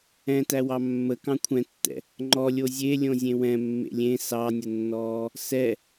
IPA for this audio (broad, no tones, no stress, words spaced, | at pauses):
ɛ̃tæwɑ mːə kɑ̃kʷʰɛ̃tːɛ̰ | ŋ͡ǃɔlʲo zʲe lʲõzʲẽwɛ̃ mːḛlʲẽ sɑnʲənːɔː | sɛ